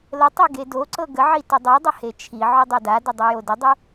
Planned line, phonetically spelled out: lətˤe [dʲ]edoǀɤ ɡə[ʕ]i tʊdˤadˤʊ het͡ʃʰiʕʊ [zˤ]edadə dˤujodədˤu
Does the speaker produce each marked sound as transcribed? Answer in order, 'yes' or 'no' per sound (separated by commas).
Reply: no, yes, no